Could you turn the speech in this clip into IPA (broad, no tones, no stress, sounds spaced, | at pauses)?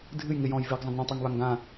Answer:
dʱ ɨ j ŋ ɪ j ɔ̃ j v ɪː ɡ zˤ ə̃ ɡ ɳ ə̃ tˤ a ŋ β a ŋ ɡ ã